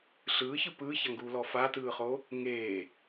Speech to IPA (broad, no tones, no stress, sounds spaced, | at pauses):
ɬ ɯː ç ɯ p ɯː ç a ŋ ɡ uː l ɔ f a t ɯː χ o | ŋ eː